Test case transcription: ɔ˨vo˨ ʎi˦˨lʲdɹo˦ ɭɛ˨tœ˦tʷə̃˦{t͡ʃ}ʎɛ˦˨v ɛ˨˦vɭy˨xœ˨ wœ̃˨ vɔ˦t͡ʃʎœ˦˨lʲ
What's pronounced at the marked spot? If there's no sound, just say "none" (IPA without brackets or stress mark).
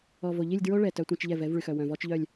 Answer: t͡ʃ